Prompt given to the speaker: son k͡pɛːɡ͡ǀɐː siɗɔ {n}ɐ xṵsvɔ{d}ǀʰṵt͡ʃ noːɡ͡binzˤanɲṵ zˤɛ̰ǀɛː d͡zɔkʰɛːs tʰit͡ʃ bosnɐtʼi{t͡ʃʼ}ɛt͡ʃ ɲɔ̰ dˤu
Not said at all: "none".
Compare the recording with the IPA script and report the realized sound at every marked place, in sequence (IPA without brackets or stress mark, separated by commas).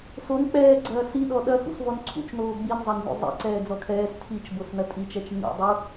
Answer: ɗ, n, t͡ʃ